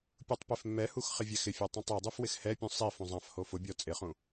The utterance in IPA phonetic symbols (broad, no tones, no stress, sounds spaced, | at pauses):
pʲ u tˤ p e f mː ɛ h u x χ ɪ vʲ ɛ x ɪ fʲ a tˤ ũ tˤ e dˤ u f w ɪ x h ɛ pʲ ũ sˤ i f ũ zˤ ã f h o f ʊ bʲ ɔ t͡sʼ ɪ χ ũ